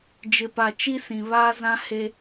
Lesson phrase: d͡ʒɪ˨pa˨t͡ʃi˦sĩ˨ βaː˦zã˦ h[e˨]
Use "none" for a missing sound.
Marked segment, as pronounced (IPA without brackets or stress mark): e˦